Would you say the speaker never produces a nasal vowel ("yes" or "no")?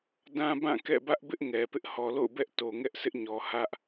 no